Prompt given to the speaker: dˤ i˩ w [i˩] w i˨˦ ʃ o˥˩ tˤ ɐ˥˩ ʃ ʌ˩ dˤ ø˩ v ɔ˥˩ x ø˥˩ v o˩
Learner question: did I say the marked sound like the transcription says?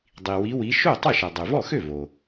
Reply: no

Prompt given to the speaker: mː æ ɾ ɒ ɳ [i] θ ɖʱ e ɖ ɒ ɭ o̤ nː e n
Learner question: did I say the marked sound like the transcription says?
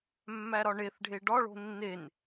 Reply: no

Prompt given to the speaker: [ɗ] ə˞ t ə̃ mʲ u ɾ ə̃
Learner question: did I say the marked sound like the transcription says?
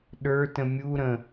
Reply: yes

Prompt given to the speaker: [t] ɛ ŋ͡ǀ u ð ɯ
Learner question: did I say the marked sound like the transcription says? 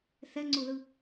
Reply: no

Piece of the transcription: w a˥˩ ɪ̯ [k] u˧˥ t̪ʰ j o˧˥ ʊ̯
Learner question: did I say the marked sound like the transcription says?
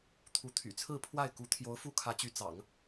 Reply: yes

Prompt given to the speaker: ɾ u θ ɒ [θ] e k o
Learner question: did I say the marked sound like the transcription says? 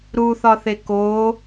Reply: yes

